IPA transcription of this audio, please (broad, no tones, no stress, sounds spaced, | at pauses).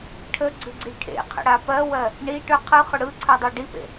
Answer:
ʈʰ ə ɡ͡ǀ ʏ ɡ͡ǀ i ʈʰ ḛ qʰ ə̰ ɽ a p ɜ w ɜ | ɳ i ʈ ʏ qʰ ɯ χ ʏ ɽ ɯ ǀʰ ɜ dˤ ɜ ɖ i p ḛ